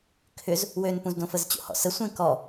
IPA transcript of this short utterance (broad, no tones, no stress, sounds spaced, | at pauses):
kʰ ʏ z | w ø n p ũ z d õ f ə z t͡ɕ o̰ h ɔ̰ s ə sʷ ẽ k ɔ